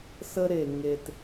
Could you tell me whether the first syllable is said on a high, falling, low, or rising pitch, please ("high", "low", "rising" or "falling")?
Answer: high